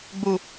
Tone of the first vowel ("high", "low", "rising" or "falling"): low